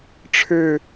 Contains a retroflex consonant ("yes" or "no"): yes